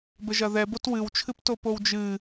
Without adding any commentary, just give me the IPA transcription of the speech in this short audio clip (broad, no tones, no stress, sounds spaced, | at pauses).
b ɘ ʒ ɐ ð ɛ b o t w ɨ w t͡ʃʰ ɨ p t o p o w d͡ʒ ɨ